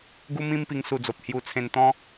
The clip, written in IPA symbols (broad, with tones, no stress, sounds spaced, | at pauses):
ɡ u˦ m ĩ˦ m p i˧ ŋ s u˧ d͡z o˨ p̚ h j u˧ t͡sʰ ẽ˧ n t̪ ɔ̃˦